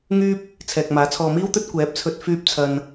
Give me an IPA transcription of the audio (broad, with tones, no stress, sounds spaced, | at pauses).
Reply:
ŋ yː˥ p̚ | t͡sʰ ɛː˨ k̚ m aː˨˥ t͡sʰ ɔː˨ m iː˥ w t̪ ɵ˥ t̚ kʷ ɛː˨˥ p̚ t͡sʰ ɵ˧ t̚ f yː˧ p̚ t͡sʰ ɐ˨ n